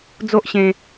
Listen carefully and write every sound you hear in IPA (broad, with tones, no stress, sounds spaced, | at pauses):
d͡z o˦ ʔ ɕ ẽ˧